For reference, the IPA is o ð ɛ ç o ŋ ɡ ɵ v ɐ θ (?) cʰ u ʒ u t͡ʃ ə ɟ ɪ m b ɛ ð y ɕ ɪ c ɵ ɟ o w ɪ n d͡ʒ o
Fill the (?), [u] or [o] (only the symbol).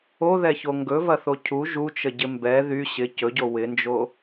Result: o